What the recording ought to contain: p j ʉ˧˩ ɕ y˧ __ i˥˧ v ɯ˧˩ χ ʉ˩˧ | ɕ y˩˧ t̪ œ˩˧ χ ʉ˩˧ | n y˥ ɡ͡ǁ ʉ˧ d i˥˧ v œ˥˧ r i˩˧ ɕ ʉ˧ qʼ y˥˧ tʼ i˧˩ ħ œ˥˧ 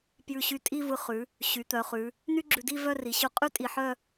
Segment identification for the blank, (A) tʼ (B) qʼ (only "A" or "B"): A